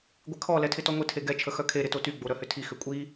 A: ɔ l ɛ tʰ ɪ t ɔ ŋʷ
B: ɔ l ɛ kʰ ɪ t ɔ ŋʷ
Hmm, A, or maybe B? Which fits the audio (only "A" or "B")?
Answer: A